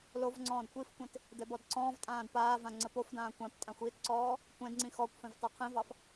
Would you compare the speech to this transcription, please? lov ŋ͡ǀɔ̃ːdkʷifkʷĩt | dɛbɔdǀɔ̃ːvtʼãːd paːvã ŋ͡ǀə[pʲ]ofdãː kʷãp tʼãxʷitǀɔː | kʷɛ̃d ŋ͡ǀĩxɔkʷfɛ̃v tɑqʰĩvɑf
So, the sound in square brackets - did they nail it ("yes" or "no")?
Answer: no